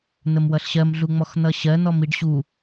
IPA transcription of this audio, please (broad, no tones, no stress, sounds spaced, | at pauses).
n̪ ə m w ʌ ɬ ɕ ɜ m ɮ u ŋ͡m ɔ x n̪ ʌ ɕ ɜ n̪ ɔ m i ɖ ɕ u